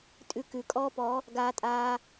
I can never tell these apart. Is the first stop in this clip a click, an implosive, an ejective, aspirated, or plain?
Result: ejective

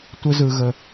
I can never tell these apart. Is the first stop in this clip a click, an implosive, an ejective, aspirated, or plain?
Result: plain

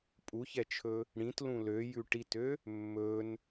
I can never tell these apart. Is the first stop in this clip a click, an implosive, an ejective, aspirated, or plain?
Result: ejective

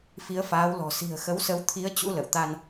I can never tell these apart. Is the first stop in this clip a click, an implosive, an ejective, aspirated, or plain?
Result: aspirated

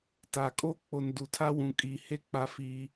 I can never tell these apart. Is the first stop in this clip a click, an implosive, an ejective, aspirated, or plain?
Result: plain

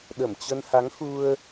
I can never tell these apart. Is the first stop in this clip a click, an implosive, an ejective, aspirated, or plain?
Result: implosive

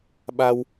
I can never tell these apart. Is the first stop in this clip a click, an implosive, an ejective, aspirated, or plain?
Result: implosive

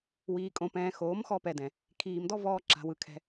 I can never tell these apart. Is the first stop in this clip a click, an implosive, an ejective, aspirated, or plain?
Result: ejective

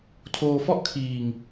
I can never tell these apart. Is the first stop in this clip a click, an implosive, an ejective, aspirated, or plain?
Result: aspirated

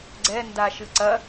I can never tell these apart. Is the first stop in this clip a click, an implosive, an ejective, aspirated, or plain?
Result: click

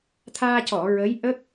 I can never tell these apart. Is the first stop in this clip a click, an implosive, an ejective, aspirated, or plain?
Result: aspirated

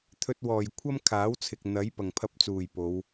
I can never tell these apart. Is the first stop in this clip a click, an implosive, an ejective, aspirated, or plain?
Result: aspirated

